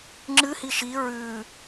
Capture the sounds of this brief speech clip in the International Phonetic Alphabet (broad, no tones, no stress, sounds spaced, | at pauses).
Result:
ŋ͡ǁ ɨ h i ʃ i ɹ ʉ